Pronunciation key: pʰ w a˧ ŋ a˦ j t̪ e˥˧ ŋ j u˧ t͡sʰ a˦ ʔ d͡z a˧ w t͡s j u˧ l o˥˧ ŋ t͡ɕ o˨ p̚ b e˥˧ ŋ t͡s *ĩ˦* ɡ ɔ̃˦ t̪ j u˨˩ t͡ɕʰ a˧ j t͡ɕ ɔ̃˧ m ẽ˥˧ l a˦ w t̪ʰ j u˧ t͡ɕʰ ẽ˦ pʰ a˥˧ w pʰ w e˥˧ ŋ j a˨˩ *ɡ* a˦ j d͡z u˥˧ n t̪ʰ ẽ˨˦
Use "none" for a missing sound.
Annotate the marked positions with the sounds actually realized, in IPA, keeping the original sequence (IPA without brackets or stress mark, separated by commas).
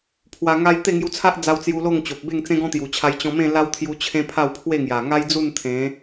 ẽ˦, ŋ